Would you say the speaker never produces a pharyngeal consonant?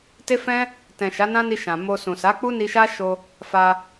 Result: yes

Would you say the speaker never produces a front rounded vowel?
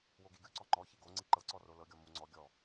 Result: yes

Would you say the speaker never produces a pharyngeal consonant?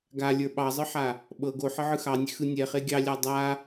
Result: no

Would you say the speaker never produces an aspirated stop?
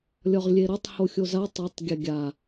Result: yes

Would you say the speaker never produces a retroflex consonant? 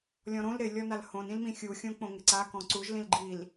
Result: yes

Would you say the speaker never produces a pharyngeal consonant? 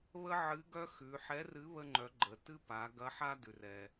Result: no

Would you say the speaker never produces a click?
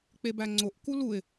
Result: no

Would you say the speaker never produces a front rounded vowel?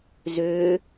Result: no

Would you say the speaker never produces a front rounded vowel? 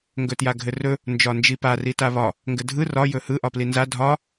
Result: yes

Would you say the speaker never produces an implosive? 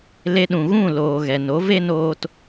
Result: no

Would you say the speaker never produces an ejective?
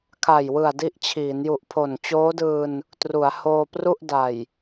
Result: yes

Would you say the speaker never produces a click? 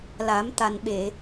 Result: yes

